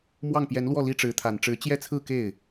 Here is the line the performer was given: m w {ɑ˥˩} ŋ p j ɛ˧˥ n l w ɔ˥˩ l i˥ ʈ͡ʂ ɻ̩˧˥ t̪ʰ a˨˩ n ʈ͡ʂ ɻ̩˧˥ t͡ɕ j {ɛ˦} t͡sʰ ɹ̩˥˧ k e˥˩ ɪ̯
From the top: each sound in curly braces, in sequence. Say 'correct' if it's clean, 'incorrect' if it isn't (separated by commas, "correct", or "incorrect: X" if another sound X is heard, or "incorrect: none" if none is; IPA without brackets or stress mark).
correct, incorrect: ɛ˥˧